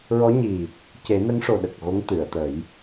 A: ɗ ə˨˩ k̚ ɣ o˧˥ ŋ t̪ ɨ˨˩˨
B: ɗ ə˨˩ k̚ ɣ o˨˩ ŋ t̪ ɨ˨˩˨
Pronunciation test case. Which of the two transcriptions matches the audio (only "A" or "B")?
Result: A